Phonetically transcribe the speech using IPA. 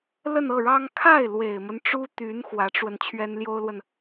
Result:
lə˥˧nɤ˥˩ɻɑ˥ŋ kʰa˥˩ɪ̯ lwe˨˩ɪ̯mə˦nʈ͡ʂu˥t̪y˧˥n xwä˧˥ʈ͡ʂwə˧n t͡ɕʰɥɛ˥nljo˥ʊ̯lwə˨n

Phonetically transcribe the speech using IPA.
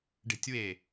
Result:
ɖe̤tʲwe

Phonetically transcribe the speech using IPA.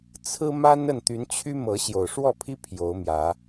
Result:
t͡sʰɹ̩˦ma˦n ə˥˨n t̪y˨˦nt͡ɕʰy˦ mɤ˨˦ ɕjo˨˩ʊ̯ʂwɔ˥˨pʰi˦ pʰjo˨˦ʊ̯mjä˨˦

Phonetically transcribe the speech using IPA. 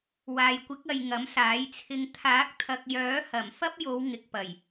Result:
waː˨jkʷɪ˨˥k̚ɐ˨j ŋɐ˨˥msaː˨˥jt͡sʰɪ˧ŋ t̪ʰaː˨˥k̚t̪ʰɐ˨k̚jœː˨˥hɐ˨˩m fɐ˥p̚ jo˨˧w ŋɪ˨k̚pɐ˨˩j

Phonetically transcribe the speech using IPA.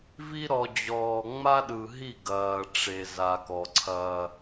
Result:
vi˦ ɾɔ˨d͡ʑɔː˨ ŋ͡ma˦ɗɯ˨ɦi˦˨ ɡɐː˨ ʈ͡ʂe˨ za˨kɔ˨ǀʰɐː˦

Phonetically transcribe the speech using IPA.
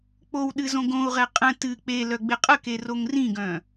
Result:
k͡powɗɨ zõɡõu̯ʁɛ qʼə̃ tɨ k͡pe lœɡ͡bɪqʼəke roŋrĩɡœ̃

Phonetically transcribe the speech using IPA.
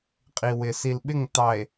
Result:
qʼi˨wɪ˨ si˨lɓɪ˦˨ŋtɑ˨e̯

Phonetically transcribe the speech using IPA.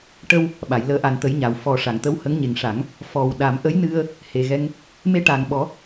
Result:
ʈə˧w | ɓa˨˩˨jləː˧˥ ʔa˨˩nt̪ə˨˩˦j ɲa˨˩˨wfɔ˨˩ʂa˨˩˨ŋ t̪ə˧˥whə˧˥ŋɲe˨˩ŋʂa˨˩˦ŋ | fɔ˨˩wɗa˨˩˦m ʔə˧˥jnɨ˧ə̯ | he˨˩ɣɛ˧ŋ | me˧ʈa˨˩ŋɓɔ˨˩˦

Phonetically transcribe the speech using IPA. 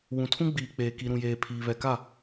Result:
wũ˨tʰũ˦ɡ͡biː˨k͡peː˨ ki˨ɾũ˨jeː˨pʰiː˨ βɛ˨ka˦˨

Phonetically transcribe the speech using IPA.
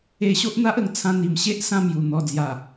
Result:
e˧ɕo˦ʔn̪a˦ʔə˧ŋ t͡sʰã˧n̪i˨˩mɕe˦ʔ sã˥˧mju˨˩ n̪ɔ˨˩d͡zja˨˩

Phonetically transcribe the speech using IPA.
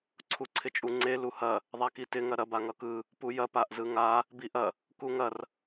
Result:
ǀʰuǀʰɪt͡ʃʼuŋ͡ǀe luhɐ | ðˤakitɪ ŋɐɾɐ baŋʌkɯ | pujɐ paʔzɯŋa | biʔɐ | kuŋɐr

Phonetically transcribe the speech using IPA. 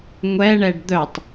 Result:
ŋʷɛɳɛɖ d̪œtˤ

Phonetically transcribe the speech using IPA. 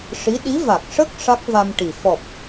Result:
ʂi˧˥ ɗi˧˥va˨˩k̚ ʂə˦˥k̚ ʂa˦˥k̚va˧mʈi˨˩ fɔ˨˩p̚

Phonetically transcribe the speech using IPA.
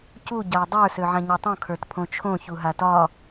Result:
cu ɟau̯dˤə˞ søʕãɲɤtˤõ kʰə˞tpʰõt͡ʃʰõ çuɦatɒ

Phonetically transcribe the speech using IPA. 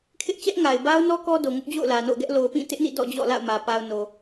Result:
kʰɪ˦ʔ t͡ɕɛ˦ʔŋa˨ɪ̯ba˦ʊ̯nɔ˦ kɔ˦do˨ŋʊ˦ʔ d͡ʑo̰˦˨ʊ̯lä˨no̰˦˨ʊ̯ɡɛ˦ʔ lo˨ʊ̯pĩ˦˨tɪ˦ʔnḭ˦˨ dɔ̰˦˨d͡ʑɔ̰˦˨ la̰˦˨ʊ̯mä˨ pa˨ʊ̯no˨

